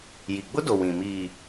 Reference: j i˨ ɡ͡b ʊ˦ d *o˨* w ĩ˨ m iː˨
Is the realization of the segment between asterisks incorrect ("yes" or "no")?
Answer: no